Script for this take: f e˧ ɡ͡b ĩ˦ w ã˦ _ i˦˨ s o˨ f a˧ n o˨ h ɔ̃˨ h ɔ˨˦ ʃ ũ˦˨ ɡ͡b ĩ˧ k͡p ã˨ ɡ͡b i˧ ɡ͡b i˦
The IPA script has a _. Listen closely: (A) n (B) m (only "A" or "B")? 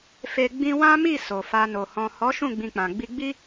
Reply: B